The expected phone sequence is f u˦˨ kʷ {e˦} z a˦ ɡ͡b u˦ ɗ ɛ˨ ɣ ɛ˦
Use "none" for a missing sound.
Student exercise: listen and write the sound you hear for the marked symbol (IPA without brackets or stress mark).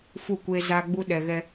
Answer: e˦